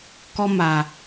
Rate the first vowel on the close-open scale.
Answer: mid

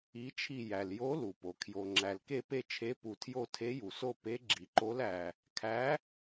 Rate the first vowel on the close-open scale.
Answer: close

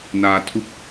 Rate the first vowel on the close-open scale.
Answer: open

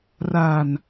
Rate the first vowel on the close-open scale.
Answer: open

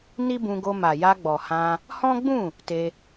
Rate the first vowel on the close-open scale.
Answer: close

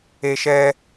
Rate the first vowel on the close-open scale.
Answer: mid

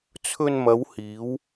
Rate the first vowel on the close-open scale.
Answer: mid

